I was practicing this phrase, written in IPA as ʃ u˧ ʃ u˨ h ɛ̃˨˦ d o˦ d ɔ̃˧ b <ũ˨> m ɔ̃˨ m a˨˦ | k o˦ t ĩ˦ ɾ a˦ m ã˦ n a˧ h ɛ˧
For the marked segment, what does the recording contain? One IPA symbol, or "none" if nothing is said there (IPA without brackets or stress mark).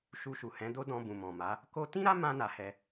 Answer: ũ˨